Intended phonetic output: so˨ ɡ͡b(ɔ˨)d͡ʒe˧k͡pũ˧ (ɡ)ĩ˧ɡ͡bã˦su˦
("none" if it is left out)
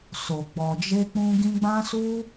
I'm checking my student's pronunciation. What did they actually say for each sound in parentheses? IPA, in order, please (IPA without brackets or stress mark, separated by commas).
ɔ˨, ɡ